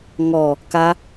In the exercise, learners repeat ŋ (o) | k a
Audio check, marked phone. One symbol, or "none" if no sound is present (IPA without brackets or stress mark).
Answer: ɔ